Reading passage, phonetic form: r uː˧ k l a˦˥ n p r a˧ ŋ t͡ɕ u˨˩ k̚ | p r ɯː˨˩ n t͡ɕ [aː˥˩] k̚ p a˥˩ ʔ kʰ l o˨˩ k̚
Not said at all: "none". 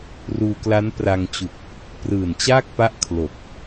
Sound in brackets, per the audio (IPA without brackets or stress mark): aː˥˩